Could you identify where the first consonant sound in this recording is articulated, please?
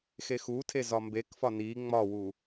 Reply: velar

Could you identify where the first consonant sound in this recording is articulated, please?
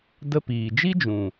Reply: alveolar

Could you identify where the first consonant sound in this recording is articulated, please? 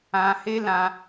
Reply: glottal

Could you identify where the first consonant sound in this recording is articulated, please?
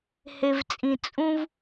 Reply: glottal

